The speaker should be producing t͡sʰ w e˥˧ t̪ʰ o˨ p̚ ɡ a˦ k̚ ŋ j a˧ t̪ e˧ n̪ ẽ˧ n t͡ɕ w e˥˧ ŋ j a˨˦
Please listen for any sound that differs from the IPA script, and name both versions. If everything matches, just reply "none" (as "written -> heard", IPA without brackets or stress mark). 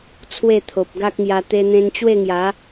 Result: none